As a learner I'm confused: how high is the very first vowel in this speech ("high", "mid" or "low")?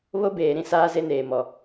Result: mid